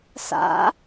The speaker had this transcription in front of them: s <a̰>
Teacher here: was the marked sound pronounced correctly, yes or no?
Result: yes